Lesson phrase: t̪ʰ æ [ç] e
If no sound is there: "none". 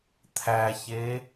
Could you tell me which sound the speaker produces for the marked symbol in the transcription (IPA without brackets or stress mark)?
ç